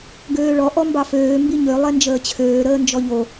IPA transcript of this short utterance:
ɡøːɭɔ ʔɔmbɑføː mbiɲø lˠɛnd͡ʒəːt͡ɕʰøː ɾəːnd͡ʒɔʎo

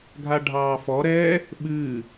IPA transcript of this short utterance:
ɡʱaɖʱɑːfɔɾɛː | ɓɨː

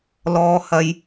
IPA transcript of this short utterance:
lɔː˨hɐ˨˧j

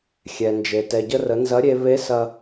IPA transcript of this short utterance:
xʲɛ˩nd͡ʒe˩ tɛ˩ɟə˧rə˩˧nzɐ˧˥ ɾʲe˧ βe˧˥ sɐ˧

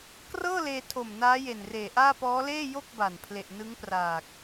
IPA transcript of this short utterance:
krɤː˥˩leː˧tʰo˨˩m naː˦˥je˨˩nreː˨˩ʔaː˥˩ pɔː˦˥ leː˥˩jo˥˩k̚ ba˨˩n pʰle˨˩ʔnɯ˦˥ŋpraː˨˩k̚

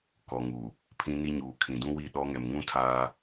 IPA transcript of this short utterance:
kɔ˨ŋu˨ | pʰĩ˦ni˦ɲuː˨ kʰĩ˨dũ˦wi˦˨ ɗɔ˦ ŋɛ˨mŋũ˦tʰaː˦

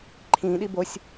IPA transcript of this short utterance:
ǃʰĩɗi bosʲ

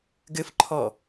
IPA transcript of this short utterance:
ɡɘfǃʰɔ

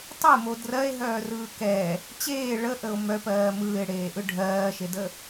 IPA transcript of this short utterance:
tˤemo drɜe̯ɦœːrɯː kɛ | t͡ɕeː ɭəʔəo̯ mœpɜː mɯːe̯ɽeːʔɯ ɖʱɜːʃedə

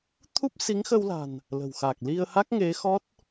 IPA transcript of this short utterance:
t̪ʰu˦˥p̚si˨˦ŋxə˧wla̤˨˩n | lə̤˨˩wxa˨˩k̚ li˧ə̯ha˦˥k̚ŋe˨˦ xɔ˦˥t̚

